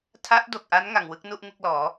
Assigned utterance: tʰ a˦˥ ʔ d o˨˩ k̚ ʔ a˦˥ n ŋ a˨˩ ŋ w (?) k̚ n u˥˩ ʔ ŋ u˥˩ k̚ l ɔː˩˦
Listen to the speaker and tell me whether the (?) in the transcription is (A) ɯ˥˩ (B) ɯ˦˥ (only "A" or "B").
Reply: B